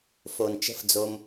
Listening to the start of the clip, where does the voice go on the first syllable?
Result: low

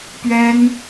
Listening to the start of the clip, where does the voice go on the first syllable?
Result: high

